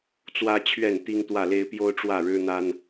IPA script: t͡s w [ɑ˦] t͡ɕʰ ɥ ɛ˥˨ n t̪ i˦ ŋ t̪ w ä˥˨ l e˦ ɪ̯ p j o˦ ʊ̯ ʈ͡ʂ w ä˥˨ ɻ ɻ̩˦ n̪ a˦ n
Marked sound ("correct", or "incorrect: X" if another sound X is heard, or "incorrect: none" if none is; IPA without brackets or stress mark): incorrect: ä˦